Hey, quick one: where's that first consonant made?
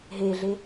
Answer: throat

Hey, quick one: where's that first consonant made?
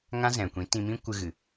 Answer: velum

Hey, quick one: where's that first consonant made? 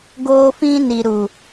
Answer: velum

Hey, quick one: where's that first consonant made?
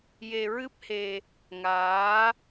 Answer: palate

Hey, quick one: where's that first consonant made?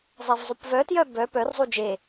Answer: tongue tip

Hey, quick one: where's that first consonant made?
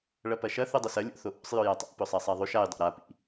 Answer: retroflex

